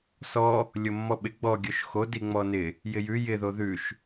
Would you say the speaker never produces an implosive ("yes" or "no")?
no